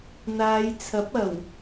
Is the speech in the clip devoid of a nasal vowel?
yes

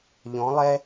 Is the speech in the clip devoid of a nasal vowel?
no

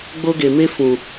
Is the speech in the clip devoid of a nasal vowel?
no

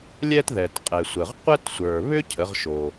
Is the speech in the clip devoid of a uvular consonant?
no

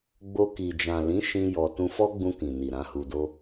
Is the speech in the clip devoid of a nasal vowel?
no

